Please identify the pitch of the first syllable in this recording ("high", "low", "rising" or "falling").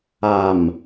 low